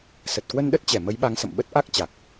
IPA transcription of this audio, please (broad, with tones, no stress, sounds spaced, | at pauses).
s ə˨˩ t̚ k w ə˧ n ɗ ə˦˥ t̚ t͡ɕ ɛ˧˩ m ə˨˦ j ɓ a˨˦ ŋ s ə̰˧˨ m ɓ ə˦˥ t̚ ʔ a˦˥ k̚ t͡ɕ a˨˩ k̚